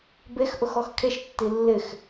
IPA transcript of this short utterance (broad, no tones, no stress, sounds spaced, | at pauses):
b e x ʔ ʊ x ɔ x kʰ e ʃ tː i lː ɪ x